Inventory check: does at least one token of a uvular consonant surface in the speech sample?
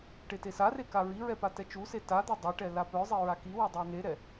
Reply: no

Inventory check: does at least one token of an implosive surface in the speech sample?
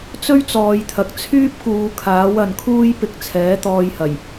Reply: no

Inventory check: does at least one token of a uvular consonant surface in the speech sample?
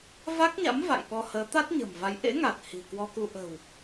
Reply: no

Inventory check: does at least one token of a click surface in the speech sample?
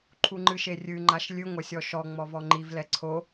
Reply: yes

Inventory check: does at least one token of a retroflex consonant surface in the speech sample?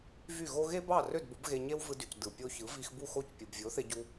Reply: no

